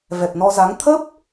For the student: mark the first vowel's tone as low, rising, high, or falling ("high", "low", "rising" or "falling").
low